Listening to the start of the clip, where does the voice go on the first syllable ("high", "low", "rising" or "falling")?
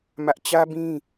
high